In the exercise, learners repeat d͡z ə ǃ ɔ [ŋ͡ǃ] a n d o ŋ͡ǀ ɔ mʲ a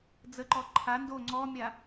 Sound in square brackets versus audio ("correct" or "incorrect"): incorrect